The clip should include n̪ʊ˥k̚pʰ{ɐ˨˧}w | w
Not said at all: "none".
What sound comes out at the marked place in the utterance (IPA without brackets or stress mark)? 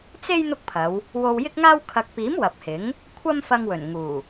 ɐ˨˧